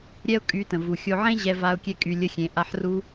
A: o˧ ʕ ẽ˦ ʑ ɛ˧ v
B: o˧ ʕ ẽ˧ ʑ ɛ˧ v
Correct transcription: A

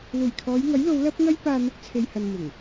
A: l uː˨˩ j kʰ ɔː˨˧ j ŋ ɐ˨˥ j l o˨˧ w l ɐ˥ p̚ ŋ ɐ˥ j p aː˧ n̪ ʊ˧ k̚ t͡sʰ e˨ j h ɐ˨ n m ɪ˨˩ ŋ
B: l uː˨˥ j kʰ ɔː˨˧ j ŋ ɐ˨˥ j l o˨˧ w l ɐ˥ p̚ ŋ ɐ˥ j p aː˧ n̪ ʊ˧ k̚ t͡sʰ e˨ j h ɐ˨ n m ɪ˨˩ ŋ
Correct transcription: A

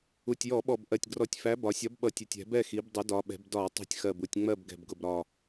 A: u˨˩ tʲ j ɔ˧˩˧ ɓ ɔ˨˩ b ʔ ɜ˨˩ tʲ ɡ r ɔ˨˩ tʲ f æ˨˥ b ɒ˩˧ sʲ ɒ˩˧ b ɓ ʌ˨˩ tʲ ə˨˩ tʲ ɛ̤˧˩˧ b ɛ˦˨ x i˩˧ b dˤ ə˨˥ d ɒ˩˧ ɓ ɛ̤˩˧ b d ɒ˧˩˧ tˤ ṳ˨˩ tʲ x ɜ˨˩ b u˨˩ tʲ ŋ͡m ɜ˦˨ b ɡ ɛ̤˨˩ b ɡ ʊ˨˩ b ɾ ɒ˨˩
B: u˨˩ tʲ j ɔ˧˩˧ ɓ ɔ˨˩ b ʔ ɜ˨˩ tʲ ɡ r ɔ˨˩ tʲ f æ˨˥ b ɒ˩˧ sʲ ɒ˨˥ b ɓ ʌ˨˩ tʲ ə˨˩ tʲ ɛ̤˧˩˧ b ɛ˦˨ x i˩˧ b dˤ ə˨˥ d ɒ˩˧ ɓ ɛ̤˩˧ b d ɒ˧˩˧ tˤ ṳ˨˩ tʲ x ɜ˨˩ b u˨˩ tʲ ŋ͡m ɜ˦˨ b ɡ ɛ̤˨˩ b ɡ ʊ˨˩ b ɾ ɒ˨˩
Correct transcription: B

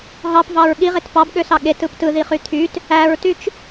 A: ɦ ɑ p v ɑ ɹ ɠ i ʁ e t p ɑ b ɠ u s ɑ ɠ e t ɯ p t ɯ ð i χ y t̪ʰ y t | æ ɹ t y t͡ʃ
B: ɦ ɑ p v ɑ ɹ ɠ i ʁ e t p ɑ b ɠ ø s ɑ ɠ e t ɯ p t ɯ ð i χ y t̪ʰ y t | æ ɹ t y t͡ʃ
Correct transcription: B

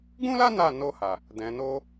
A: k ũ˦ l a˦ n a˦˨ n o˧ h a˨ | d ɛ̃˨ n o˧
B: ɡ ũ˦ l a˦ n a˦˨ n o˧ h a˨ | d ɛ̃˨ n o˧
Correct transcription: B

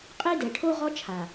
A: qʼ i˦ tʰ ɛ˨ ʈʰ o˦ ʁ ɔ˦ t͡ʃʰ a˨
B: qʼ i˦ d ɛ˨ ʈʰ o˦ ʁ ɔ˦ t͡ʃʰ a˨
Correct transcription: B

